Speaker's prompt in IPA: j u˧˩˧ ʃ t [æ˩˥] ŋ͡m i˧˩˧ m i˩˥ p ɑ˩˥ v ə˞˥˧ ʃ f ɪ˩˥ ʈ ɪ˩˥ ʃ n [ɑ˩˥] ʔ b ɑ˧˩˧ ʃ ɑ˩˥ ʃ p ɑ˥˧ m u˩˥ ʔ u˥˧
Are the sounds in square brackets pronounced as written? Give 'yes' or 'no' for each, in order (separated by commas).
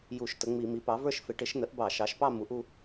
no, no